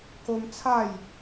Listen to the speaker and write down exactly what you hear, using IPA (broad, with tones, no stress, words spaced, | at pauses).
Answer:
ko˦m t͡sʰa˥˧j